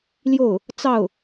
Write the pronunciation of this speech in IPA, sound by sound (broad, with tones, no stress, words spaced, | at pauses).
ljo˥˩ʊ̯ | t͡sɑ˥˩ʊ̯